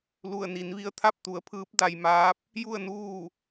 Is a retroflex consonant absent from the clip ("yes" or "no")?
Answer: yes